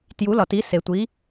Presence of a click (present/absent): absent